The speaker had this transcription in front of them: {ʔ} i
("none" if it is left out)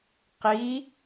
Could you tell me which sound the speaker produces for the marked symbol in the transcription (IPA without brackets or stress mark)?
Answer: q